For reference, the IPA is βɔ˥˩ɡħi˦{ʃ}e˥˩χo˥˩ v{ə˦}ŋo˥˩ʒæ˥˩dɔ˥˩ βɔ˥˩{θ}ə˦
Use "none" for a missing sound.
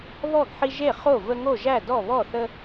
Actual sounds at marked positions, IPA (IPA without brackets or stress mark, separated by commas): ʒ, ə˦, θ